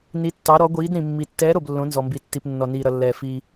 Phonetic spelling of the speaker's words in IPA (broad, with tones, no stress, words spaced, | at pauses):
ni˩˧tːɑ˩˧ɾɔ˩˧ɡʷiː˩˧d ɾĩ˩mːi˩ tːɛː˩˧ɾo˩b lːõ˩˧nzɔ˩mbi˩ tːi˩p nːɔ˩niː˩ɾʌ˩lːɛː˩ fiː˩